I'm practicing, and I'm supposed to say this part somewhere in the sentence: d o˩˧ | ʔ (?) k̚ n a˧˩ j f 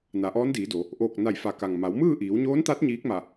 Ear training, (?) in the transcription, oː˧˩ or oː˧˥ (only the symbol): oː˧˩